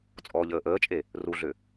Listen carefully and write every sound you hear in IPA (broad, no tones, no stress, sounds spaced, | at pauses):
t͡sʼ ɔː ʎ əː ʔ əː t͡ʃʼ e | r u ɮ ʏ